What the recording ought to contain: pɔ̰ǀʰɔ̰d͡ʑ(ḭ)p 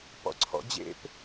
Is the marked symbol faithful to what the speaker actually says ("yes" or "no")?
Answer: no